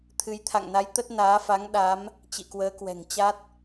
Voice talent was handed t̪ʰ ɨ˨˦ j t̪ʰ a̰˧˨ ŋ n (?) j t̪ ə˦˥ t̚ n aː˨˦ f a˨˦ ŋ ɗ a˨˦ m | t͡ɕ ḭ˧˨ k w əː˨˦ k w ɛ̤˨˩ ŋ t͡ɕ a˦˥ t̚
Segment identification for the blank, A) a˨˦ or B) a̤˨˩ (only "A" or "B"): A